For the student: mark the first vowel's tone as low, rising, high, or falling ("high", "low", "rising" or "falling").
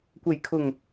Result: low